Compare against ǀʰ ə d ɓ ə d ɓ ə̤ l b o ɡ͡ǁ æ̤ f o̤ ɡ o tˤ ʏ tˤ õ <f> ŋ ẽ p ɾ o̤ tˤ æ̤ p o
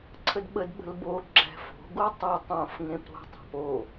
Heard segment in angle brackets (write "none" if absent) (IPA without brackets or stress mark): f